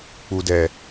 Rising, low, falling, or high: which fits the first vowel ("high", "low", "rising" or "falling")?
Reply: low